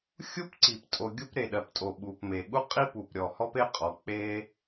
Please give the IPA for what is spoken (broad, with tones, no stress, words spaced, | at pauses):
xʲu˥pǀi˩ptʼo˩ ɡʲu˥p ɾe˩ɗɜ˩ptʼo˩ ɓu˩pme˩ ɠu˥qʼi˥pu˩p ɾʲɔ˩hɔ˥pe˥ qʼɔ˩ k͡pe˥